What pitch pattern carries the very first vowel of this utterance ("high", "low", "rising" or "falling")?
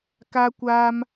high